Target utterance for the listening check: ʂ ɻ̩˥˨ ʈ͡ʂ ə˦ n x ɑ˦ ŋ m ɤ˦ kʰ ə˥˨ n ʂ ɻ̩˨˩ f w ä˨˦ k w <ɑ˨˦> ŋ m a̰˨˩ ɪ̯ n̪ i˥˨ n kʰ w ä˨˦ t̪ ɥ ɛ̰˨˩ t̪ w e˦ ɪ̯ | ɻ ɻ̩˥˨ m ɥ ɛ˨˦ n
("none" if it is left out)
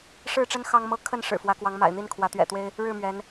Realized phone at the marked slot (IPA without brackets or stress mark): ɑ˨˦